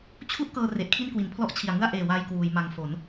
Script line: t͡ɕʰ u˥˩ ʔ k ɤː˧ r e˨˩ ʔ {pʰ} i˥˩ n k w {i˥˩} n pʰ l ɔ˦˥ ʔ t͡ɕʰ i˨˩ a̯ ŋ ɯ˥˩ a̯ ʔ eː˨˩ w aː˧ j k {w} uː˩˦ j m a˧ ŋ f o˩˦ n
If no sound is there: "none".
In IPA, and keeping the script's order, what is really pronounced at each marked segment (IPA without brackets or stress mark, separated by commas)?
kʰ, i˩˦, w